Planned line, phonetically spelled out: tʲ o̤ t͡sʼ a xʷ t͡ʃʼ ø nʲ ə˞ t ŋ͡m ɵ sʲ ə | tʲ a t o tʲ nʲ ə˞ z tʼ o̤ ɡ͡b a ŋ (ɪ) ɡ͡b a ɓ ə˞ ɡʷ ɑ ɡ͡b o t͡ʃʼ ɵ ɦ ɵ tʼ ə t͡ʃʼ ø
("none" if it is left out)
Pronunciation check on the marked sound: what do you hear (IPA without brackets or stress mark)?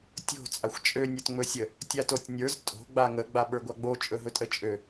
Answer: ə